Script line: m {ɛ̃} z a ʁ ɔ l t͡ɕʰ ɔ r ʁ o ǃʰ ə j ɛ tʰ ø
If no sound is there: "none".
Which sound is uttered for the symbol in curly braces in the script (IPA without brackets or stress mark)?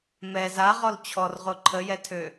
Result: ɛ